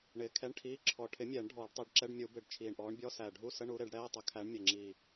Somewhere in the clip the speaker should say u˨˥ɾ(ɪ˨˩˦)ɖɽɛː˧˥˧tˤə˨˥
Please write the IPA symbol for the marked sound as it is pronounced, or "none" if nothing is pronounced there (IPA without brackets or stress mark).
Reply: ɪ˨˩˦